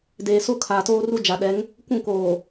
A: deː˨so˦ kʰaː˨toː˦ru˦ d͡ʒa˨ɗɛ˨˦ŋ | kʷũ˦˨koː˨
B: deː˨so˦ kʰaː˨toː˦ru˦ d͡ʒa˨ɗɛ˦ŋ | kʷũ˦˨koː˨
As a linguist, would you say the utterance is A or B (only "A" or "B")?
A